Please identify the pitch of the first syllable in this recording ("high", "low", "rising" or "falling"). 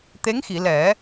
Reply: rising